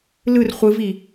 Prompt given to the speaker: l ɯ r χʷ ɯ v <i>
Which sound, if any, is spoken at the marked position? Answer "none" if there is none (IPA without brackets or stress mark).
i